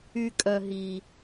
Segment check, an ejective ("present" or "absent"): present